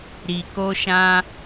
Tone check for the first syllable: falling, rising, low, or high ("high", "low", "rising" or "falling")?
low